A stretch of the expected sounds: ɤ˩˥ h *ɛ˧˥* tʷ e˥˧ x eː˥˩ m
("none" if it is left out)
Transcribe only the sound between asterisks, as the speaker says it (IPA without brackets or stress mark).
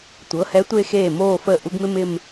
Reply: ɛ˧˥